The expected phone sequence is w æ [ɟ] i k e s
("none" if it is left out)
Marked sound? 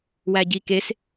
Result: ɟ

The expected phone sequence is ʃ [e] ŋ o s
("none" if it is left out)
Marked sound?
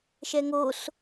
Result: ɛ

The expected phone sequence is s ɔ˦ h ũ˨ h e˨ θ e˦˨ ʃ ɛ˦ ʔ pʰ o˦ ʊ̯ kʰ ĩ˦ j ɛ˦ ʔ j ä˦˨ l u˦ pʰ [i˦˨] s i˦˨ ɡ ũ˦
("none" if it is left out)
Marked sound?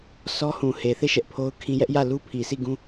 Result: i˨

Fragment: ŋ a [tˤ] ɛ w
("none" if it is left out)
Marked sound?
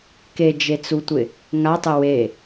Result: tˤ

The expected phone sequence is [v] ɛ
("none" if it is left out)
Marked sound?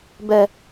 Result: b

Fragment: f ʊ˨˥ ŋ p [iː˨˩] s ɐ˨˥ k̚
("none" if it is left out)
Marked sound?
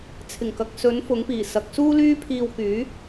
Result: iː˨˩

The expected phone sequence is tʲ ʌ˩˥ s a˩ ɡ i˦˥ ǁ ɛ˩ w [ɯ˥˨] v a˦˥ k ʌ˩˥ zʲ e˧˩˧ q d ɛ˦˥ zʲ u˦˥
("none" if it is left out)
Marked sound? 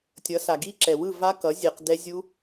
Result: ɯ˥˨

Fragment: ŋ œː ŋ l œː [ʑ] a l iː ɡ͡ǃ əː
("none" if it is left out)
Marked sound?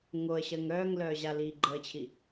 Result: ʑ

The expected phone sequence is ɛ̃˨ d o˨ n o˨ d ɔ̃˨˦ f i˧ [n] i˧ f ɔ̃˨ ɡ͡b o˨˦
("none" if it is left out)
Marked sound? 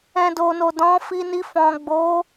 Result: n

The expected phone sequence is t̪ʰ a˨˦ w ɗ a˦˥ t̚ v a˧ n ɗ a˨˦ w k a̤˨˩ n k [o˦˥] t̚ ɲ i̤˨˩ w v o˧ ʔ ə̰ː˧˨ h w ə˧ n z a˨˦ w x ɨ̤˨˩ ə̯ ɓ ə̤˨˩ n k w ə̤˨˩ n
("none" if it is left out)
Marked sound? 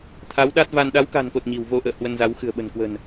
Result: o˨˩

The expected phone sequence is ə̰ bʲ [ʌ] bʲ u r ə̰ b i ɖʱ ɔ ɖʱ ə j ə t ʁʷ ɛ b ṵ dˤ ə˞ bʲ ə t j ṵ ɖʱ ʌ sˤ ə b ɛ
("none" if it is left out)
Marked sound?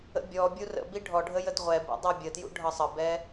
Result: ɔ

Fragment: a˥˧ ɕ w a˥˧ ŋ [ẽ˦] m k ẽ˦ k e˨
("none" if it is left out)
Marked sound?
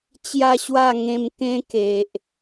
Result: ẽ˧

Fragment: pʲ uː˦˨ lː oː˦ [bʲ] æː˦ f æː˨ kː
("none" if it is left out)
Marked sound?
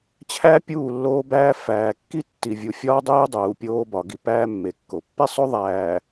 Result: b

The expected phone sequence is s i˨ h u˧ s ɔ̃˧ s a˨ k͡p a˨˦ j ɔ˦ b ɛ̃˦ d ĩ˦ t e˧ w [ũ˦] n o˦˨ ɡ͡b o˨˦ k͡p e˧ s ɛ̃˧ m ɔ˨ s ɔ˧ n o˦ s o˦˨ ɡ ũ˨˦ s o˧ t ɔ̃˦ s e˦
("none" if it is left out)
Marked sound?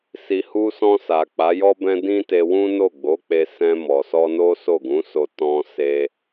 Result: ũ˦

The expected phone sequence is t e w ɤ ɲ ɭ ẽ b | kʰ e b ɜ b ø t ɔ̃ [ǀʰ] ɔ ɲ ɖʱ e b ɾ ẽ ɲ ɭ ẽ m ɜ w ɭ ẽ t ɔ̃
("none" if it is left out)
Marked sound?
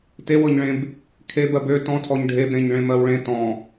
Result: tʰ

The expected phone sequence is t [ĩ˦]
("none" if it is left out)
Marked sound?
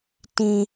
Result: ĩ˦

